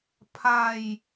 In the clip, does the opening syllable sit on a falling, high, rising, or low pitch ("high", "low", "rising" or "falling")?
falling